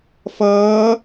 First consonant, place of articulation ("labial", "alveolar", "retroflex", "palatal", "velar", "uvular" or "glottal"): labial